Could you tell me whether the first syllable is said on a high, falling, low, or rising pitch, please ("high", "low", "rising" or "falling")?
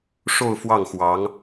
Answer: falling